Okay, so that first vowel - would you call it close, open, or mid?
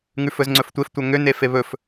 close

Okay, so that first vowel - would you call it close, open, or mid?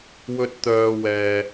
mid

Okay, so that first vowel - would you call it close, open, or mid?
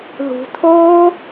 close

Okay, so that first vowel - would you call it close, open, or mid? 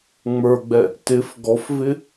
mid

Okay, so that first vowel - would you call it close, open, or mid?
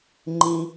close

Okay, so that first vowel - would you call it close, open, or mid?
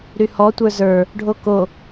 close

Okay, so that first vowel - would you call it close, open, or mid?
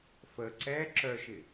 mid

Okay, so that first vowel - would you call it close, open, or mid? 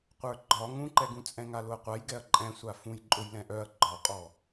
mid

